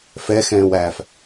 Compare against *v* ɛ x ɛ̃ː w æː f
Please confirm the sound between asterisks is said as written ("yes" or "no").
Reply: no